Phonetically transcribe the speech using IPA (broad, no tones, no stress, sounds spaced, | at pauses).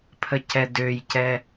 pʰ ə c ɛ d ø j c ɛ